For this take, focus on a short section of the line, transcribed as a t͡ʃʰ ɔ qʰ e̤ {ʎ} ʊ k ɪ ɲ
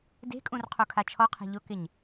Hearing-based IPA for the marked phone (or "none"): ʎ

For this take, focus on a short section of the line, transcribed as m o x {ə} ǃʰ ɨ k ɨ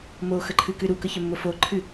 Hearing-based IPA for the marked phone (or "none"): ə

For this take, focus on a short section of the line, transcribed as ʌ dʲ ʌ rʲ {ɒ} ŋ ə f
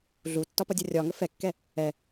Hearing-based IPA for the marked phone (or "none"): ɒ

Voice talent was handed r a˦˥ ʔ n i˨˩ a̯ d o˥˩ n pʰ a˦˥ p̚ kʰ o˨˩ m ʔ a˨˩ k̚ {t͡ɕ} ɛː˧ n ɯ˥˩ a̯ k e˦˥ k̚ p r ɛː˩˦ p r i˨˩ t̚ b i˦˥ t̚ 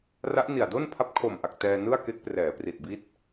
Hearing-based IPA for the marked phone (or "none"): t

